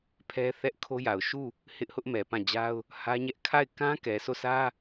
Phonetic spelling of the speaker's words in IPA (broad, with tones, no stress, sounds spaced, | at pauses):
pʰ ɛ˦ θ ɛ˦ ʔ kʰ o˦ j a˨ ʊ̯ ʃ u˦˨ | h ɪ˦ ʔ h ʊ˦ ʔ m ɛ˨ p ã˦˨ d͡ʑ a˦ ʊ̯ | h ä˦ ɲ ɛ˦ ʔ kʰ a˦˨ ɪ̯ k ã˦ k ɛ˨ s o˦˨ sʰ ä˦